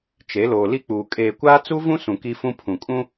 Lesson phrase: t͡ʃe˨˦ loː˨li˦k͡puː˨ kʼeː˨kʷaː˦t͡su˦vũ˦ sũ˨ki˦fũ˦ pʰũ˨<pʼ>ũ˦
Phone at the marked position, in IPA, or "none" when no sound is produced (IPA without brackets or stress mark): kʼ